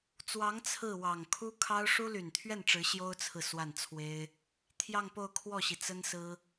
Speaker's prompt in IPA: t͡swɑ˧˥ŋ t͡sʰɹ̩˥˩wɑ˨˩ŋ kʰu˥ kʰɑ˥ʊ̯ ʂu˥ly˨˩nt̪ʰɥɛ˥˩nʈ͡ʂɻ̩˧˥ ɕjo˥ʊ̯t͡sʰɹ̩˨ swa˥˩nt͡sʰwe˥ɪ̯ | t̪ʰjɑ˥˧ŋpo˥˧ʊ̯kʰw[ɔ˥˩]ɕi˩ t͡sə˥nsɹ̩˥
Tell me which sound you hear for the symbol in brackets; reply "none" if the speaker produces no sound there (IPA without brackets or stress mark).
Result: ɔ˥˩